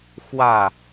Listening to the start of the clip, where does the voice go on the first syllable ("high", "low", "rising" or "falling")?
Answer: falling